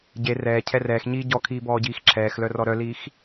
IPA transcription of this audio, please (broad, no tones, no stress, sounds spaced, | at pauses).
ɟ e r ɛː cʰ ɛ r ɛː x ɲ iː ɟ ɔ kʰ iː b ɔː ɟ iː x ǁʰ ɛː x l œ r ɔ ɾ œ l iː x